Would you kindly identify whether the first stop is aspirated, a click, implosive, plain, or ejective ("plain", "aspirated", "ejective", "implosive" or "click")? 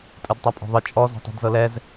ejective